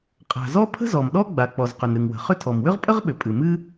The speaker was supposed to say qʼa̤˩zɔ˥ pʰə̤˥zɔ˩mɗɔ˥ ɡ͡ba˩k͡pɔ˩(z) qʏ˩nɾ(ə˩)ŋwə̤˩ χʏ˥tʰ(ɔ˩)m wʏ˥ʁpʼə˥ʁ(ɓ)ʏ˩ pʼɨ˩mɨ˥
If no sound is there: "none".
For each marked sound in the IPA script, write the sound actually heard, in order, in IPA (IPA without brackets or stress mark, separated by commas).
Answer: z, ɨ˩, ɔ˩, ɓ